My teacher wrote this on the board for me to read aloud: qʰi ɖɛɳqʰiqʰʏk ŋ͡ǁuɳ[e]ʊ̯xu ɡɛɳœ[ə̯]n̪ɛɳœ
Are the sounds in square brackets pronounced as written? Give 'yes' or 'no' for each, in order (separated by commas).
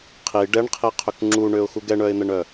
no, no